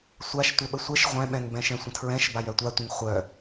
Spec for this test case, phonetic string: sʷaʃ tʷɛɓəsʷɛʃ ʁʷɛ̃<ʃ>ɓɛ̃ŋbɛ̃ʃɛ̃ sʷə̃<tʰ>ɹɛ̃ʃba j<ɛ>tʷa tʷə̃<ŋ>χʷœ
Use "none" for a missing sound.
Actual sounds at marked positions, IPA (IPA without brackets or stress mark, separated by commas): none, tʰ, œ, ŋ